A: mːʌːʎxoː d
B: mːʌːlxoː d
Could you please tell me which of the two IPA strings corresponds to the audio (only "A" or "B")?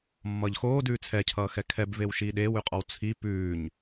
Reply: A